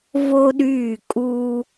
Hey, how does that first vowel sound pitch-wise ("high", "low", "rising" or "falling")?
high